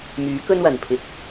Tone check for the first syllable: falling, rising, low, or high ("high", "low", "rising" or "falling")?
rising